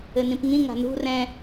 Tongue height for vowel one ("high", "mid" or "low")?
mid